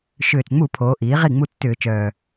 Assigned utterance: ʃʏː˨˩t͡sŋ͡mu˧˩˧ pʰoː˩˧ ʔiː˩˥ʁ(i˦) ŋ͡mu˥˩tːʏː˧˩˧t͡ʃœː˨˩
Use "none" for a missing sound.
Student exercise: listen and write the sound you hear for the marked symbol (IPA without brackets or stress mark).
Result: i˥˩